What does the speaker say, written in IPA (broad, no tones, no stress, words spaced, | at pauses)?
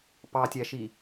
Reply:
pɑtʲæʃi